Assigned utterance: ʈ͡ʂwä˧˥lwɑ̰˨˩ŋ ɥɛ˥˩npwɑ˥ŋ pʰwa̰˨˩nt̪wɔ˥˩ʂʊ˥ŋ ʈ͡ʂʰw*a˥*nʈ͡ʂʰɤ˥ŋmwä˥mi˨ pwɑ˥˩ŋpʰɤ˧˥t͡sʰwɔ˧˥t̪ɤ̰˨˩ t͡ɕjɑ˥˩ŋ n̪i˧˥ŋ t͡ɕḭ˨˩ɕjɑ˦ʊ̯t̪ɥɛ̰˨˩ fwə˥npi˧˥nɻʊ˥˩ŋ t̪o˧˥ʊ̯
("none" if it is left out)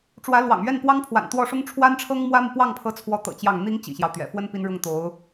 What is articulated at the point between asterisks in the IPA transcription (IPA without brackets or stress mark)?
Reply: a˥